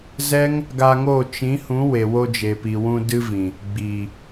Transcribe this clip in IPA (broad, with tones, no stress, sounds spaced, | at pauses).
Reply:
z ɛ˦ ŋ | ɡ a˧ ŋ o˦˨ t͡ʃ ĩ˨˦ h ũ˨˦ w e˨ w o˧ d͡ʒ e˨ p i˨ w ũ˧ d ɨ˦ v ĩ˨ | ɡ͡b iː˨